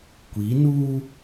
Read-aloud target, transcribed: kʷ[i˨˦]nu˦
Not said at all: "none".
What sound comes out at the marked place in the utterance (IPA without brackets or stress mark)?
i˨˦